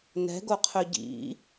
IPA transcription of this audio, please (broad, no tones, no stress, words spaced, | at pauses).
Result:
nɛ̤ɡoqʰø ɟḭ